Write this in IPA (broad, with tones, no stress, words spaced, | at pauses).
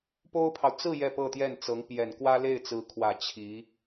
po˥ʊ̯pʰɑ˨ʊ̯ t͡sɹ̩˥˧ jɛ˥˧pɤ˥˧t̪jɛ˥˩n t͡sɤ˧˥ŋpjɛ˨˩n kwä˥le˥˩ɪ̯t͡sɹ̩˧˥kʰwä˨˩ t͡ɕʰi˧˥